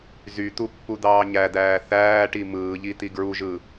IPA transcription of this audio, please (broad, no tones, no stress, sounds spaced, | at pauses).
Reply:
z y t̪ u pː u d̪ ɑː ɲ æ d̪ æː θ æː ʈ i m ɯː ʎ i t̪ i ɡ ɹ u ʒ ɯ